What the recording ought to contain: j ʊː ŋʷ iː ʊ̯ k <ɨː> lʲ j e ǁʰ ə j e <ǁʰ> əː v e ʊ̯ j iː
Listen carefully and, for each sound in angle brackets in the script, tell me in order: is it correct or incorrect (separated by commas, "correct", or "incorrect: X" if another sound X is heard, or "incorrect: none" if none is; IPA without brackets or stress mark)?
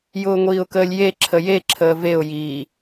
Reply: incorrect: əː, correct